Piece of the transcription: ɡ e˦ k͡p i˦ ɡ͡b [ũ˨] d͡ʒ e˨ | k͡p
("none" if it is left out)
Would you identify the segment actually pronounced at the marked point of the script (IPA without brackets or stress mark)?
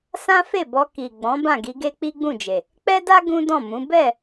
ũ˦˨